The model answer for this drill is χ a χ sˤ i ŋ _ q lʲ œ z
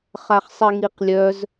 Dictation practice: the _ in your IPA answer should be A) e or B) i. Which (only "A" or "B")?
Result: B